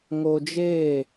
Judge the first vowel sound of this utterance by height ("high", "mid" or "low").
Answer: mid